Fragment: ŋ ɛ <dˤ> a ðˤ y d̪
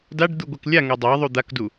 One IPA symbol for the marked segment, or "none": dˤ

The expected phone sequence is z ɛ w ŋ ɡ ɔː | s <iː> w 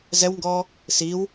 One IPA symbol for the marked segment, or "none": iː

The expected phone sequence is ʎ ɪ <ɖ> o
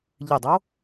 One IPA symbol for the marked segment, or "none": dˤ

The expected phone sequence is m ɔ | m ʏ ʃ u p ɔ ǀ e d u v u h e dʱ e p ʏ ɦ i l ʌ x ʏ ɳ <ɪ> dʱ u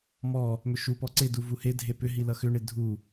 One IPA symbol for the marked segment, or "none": ɪ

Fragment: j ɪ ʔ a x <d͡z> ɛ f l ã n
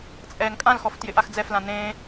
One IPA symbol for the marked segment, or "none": d͡z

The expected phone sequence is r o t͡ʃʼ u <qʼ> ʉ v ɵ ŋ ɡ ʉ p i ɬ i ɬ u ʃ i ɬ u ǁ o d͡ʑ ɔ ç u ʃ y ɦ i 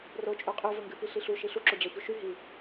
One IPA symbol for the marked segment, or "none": qʼ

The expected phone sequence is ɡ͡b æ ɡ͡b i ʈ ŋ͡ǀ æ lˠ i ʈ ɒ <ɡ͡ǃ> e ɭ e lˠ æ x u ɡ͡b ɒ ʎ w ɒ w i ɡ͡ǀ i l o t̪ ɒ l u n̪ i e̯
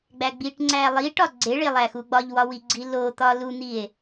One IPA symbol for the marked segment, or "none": ɡ͡ǀ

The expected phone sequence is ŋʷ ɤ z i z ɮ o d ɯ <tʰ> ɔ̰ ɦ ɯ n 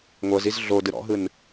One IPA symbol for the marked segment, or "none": ɾ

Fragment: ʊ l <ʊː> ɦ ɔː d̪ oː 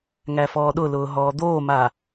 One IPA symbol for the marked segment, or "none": ʊː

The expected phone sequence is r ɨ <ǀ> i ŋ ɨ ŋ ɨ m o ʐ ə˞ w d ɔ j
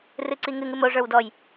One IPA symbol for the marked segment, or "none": ǀ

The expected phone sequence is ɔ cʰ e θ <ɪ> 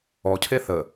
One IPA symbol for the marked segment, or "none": ə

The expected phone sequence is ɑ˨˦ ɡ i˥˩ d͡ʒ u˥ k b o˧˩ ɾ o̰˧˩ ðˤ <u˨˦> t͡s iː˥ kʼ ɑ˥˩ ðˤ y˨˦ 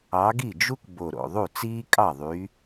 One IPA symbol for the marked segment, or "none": u˥˩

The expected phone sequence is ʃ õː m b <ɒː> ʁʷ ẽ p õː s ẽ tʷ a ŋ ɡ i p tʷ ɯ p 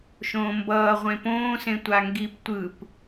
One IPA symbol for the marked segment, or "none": ʌː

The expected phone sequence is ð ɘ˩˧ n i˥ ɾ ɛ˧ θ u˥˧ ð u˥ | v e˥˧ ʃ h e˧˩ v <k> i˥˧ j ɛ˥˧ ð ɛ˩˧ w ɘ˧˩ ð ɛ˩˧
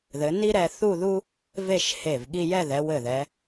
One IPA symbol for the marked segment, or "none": ɠ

